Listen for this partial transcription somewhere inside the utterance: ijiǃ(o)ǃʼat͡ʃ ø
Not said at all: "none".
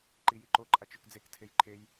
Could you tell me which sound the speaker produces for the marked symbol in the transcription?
o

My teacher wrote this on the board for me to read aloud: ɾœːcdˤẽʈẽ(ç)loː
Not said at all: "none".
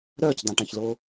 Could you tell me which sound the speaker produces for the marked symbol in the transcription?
ç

